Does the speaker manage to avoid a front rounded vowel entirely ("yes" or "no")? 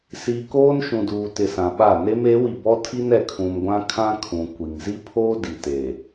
yes